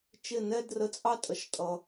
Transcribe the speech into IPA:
t͡ʃ ɪ˥˧ n ɛ˥ d r ə˨˥ t͡sʼ ɑ˥ tʼ ə˨˥ ʃ tʼ ʌ˧

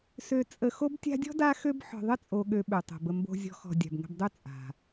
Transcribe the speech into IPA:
s ø˨ t͡sʼ ə˨ x o˦ b tʲ a̤˦ dʲ ɔ̤˥ d a˦ x ø˦ b ħ ɔ̤˨ ðˤ ə˥ t͡sʼ o˨ ɠ ø˨ ɓ ø˩ tˤ o̤˩ b ə˨ m b o̤˨ zʲ ɔ̤˨ x ɔ̤˩ dʲ a̤˩ b ŋ ə̤˨ b dˤ ø˦ t͡sʼ a̤˩

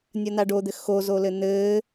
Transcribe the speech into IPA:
nʲ ɐ n̪ a ɖ o d̪ ɘ x o z o l ɘ n̪ ɘː

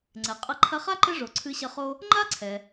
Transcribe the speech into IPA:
ŋ͡ǀ ɛ˩ qʼ ɐ˦ ǃʰ ɐ˥ χ a˥ ǃ ɘ˦ ʐ o˨ ǀʰ ɨ˦ ɕ ɐ˦ χ o˥ | ŋ͡ǃ a˥ ǀʰ ɛ˩

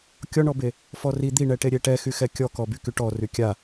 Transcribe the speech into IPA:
kʲ ɔ ɳ ɔ b e | f ɔ r i d̪ i ɳ ɛ ʈ e ɾʲ e ʈ ɛ x y x ɛ kʲ ɔ k ɔ b y k y ʈ ɔ r y kʲ a

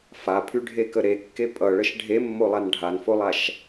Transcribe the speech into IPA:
f a pʰ y ɖʱ e k ə ɾ e kː e pʼ ʌ ɭ ə ʃ ɖʱ e mː o lˠ a n ɖʱ a n f o lˠ a ʃ

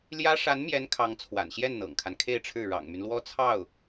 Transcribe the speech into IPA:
l j ä˥ ʂ a˧˥ n m j ɛ˧˥ n kʰ ɑ˧˥ ŋ t͡sʰ w a̰˨˩ n ɕ j ɛ˥˩ n n̪ ɤ̰˨˩ ŋ kʰ a˦ n kʰ e˥˧ ɪ̯ ʈ͡ʂʰ ɻ̩˥˩ ɻ ɑ̰˨˩ ŋ m y˦ n l w ɔ˥ t͡sʰ ɑ˥˩ ʊ̯

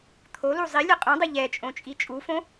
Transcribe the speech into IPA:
t̪ʰ o l u zˤ i lʲ ɯ qʼ ũ dˤ ɯ ʎ ɛ t͡ʃʼ õ t͡ʃʼ i t͡ʃʼ u f õ

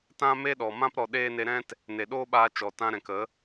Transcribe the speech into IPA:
t ã˦ m e˦ ɗ ɔ˨ m ã˦ p ɾ ɔ˨ ɗ eː˧ n e˧ ɾ ɛ̃˦ t | n e˨ ɗ oː˦ ɓ aː˧ t͡ʃ ɔ˨ t ã˧ ɾ ɛ̃˨ k ə˨˦

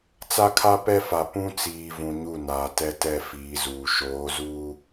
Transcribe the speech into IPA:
t͡s a˦ kʰ a˦ p ɛ˦ f a˨ p ũ˦ t͡s iː˨ v ũ˨ ɲ u˦˨ n aː˨ t ɛ˦ t ɛ˦˨ f iː˨˦ z uː˨ ʃ oː˨˦ z uː˦

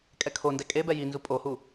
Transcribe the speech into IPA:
kʼ ɛ kʰ o n d ɛ kʼ e b ɛ j i n z u pʼ o h u

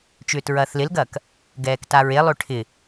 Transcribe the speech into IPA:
t͡ʃ ʏː t ɹ ɐː θ l ɪ l ɡ ɐː k | ɡ ɛː k t a ɹ e lˠ ø ʈʰ ɪ

